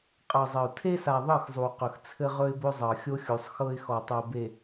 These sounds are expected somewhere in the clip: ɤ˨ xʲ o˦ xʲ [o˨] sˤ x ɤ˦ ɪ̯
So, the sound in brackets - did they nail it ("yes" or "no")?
no